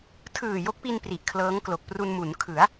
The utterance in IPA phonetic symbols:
tʰ ɯː˨˩ j o˦˥ k̚ p i˧ n p r i˨˩ ʔ kʰ l ɤː˦˥ ŋ k l o˨˩ k̚ p r u˧ n m u˩˦ n kʰ ɯ˩˦ a̯

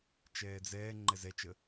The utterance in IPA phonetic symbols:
t͡ʃ ɛː d͡z ɛː ŋ͡ǃ ɛ z ɛ t͡ʃ ə

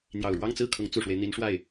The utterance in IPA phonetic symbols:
n̪ j ɑ˨˩ ʊ̯ ɻ w ɑ˥˧ ŋ t͡s ɹ̩˥˩ kʰ ʊ˧˥ ŋ t͡s u˨˩ ʂ w e˦ ɪ̯ n̪ i˧˥ n ʂ w a˥˩ ɪ̯

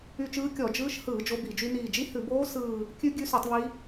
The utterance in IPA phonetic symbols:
y˦˨ t͡ʃ ɯː˦˥ kʲ ɔ˧˩˧ d͡ʒ ɯː˦˥ ʃ h ɯː˧˩˧ d͡ʒ o˦˥ b i˧˩˧ d͡ʒ y˦˥ n iː˦˨ d͡ʒ i˦˥ h ʉ˧˩˧ b oː˦˥ s ɯː˦˨ | kʲ ʉ˦˥ ɡʲ ʉ˦˥ s u˧˩˧ tˤ β i˦˥

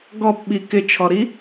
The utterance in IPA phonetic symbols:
ɡ ɔ p ɓ i k ɪ t͡ʃʰ ɔ ɾ i

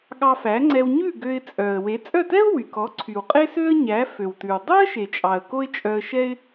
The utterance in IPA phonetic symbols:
ɠ ɑ˧ f æ˩˥ ŋ͡ǀ ɛ˧ w ɲ ʉ˥˩ ɡ ø˧ ɪ̯ t͡sʼ œ˩ ə̯ w e˩˥ t͡sʼ œ˥˩ t ɛ˥ ʊ̯ w y˩ k ɔ˩˥ ǀʰ y˩ w qʼ e˥ s ø˥ ə̯ ɲ æ˩˥ f ø˩ w t ʉ˩ w dˤ œ˥ ə̯ ʃ e˩ t͡ʃʼ ɑ˩ ə̯ k o˥ ɪ̯ t͡ʃʼ œ˧ ə̯ ʃ ɛ˥ ɪ̯

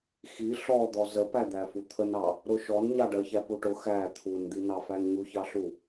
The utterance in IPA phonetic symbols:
x i ɬ ɔ d̪ ɔ z ə p æ d̪ æ f u t̪ʰ ə n ɑ | ɾ ʊ ʃ ɔ n ɲ ɑ ɖ ɜ ç æ p u ʈ ʊ x æ t̪ʰ u n d̪ i n ɑ f æ n ɲ u ç ɑ ɬ u

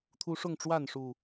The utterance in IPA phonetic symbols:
t̪ʰ u˦ ʂ ʊ˥˨ ŋ ʈ͡ʂ w a˥˨ n ʂ u˨˩

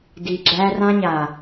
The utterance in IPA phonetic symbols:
d i˨ ɡ͡ǁ æ˦ r ã˦ ɲ a˨

